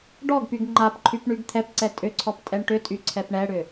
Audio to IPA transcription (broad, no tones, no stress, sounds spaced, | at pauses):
ɖ ɔ ɡ p y ɡ ŋ͡ǃ a p ǃʰ y p ɳ y ɡ t̪ʰ ɛ p ǀ ɛ tʼ ʏ ǀʰ ɔ p tʼ ɛ ɳ ʈ ʏ tʼ y ǀʰ ɛ p ɳ ɛ ɽ ʏ